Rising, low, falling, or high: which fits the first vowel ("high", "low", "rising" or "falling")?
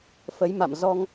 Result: rising